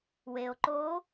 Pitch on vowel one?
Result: low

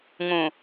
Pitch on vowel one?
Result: low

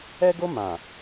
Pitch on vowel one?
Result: high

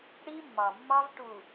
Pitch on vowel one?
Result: high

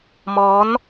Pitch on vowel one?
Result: rising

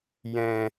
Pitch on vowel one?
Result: low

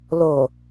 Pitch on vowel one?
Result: low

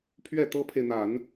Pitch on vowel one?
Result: falling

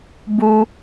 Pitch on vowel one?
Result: high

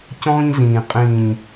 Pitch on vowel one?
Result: high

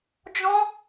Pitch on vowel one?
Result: high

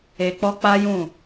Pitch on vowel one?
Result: low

